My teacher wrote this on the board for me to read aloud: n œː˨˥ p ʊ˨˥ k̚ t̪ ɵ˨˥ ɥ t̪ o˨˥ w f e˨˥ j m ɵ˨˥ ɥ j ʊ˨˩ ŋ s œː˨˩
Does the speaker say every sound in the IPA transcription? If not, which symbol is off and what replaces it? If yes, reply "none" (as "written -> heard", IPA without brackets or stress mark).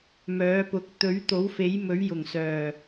n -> m